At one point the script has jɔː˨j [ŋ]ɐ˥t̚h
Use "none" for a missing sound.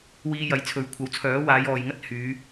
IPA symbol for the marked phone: ŋ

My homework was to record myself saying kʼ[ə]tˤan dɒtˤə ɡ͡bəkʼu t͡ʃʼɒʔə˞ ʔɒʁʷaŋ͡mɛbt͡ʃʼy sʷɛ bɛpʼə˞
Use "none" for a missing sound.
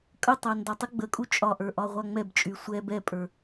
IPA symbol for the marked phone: ə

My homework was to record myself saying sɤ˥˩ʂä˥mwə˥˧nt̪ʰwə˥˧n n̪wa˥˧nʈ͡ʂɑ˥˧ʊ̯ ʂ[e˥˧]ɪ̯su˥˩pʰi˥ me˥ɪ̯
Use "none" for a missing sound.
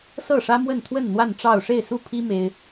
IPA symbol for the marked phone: e˥˧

